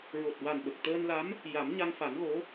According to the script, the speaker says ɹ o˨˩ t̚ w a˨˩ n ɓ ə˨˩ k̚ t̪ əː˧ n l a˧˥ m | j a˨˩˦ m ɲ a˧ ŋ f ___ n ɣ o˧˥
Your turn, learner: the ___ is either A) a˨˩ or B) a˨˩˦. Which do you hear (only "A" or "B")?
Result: B